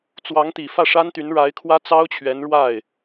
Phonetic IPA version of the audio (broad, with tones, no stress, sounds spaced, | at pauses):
t͡s w ɑ˧˥ ŋ t̪ i˨˩ f ä˥˩ ʂ a˥ n t̪ y˧˥ n ɻ a˧˥ ɪ̯ kʰ w ä˥ t͡s ɑ˥ ʊ̯ t͡ɕʰ ɥ ɛ˧˥ n ɻ w a˥˩ ɪ̯